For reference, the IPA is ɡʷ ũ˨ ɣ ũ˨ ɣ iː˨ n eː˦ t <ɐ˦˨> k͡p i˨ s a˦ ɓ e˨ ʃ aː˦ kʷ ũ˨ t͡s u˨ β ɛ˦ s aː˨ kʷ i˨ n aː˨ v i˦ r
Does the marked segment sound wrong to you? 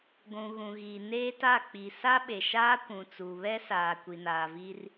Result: yes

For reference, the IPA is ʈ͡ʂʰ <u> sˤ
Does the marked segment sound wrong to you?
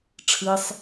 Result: yes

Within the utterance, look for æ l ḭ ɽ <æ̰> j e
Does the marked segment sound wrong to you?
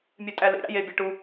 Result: no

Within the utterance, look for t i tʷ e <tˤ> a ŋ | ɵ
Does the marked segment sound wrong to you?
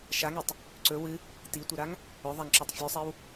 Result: yes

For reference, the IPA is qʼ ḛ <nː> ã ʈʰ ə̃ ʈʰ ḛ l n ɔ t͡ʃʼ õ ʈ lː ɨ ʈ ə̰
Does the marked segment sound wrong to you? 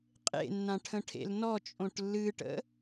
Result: no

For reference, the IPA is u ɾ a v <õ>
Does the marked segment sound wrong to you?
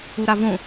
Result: no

